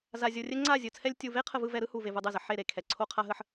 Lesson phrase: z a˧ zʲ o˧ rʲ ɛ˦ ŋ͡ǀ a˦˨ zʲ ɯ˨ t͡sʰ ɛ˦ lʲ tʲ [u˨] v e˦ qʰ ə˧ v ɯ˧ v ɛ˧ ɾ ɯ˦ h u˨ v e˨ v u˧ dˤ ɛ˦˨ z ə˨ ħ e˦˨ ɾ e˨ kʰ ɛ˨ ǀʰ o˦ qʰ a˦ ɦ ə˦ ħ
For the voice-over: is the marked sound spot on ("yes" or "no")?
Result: no